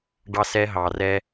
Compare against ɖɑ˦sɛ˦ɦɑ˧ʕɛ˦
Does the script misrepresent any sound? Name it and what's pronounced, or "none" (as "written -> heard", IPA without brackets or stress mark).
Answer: ʕ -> r